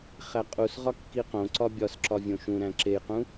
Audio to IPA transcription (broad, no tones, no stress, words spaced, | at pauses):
χæqʼusʁɒ kːiqõǀɒ bʲɒsǁɒ vʲõʃũɾæ̃ ǁejqũ